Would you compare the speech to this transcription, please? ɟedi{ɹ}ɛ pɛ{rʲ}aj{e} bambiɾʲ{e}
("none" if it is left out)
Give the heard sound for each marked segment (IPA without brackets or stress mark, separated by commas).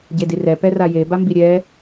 r, r, e, ɛ